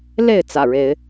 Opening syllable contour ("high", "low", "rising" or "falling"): falling